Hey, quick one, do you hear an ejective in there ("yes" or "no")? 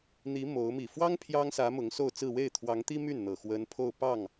no